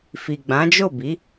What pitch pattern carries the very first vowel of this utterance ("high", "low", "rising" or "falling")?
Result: low